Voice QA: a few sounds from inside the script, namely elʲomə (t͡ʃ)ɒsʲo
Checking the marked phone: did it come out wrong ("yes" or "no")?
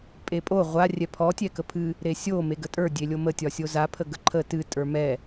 yes